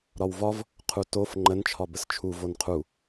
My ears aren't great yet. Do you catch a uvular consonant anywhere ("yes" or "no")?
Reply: yes